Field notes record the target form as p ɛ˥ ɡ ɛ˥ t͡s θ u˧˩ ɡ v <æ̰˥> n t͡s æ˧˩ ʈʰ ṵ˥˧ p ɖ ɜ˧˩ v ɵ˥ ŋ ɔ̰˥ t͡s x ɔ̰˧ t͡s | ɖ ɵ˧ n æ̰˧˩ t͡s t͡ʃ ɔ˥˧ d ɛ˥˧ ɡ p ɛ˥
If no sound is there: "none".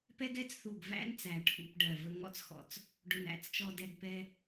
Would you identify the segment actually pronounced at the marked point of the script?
æ̰˥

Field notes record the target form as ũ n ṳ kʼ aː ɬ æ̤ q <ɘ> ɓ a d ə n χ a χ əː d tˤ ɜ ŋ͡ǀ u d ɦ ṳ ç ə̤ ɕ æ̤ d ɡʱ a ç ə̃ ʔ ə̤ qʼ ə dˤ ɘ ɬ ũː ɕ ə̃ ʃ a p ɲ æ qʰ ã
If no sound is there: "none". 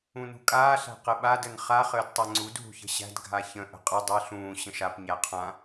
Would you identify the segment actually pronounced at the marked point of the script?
ɘ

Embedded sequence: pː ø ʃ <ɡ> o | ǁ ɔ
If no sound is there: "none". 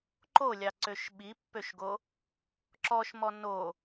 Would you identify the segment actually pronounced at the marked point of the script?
ɡ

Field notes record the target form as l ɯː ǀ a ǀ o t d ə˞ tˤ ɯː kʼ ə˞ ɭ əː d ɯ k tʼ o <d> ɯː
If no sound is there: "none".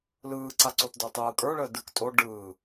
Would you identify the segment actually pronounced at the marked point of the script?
ɖ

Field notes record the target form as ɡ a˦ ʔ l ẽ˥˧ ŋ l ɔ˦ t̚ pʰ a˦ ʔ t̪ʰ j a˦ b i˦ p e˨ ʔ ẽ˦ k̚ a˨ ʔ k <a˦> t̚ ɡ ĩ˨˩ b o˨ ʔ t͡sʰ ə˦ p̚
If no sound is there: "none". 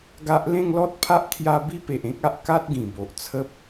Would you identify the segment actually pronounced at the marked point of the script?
a˦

